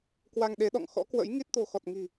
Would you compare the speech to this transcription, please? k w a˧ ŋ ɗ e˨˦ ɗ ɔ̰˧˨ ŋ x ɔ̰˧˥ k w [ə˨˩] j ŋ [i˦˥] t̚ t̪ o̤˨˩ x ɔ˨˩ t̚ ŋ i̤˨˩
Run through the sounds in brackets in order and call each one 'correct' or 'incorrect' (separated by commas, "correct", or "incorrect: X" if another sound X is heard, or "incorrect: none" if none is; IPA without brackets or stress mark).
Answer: incorrect: ə̰˧˥, correct